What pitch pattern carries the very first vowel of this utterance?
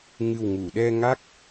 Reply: low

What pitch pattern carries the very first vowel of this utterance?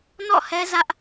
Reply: falling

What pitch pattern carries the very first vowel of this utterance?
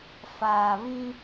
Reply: low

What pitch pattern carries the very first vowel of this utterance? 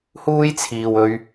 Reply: high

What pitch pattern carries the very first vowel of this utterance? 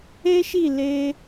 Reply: high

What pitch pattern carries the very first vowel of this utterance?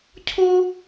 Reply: high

